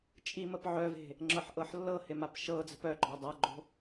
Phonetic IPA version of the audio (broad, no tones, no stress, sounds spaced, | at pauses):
t͡ʃʼ i m ə p ʕ œ v e̤ | ŋ͡ǁ ɤ ħ ʔ ɤ ħ lː ɤ h ɪ m a p ʃ ɤ d͡z ə̤ p œ ɡ͡ǃ ɒ dˤ a ɡ͡ǃ o̤